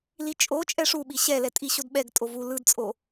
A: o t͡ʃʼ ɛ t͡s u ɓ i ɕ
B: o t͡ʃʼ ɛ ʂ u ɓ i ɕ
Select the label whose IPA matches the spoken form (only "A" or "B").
B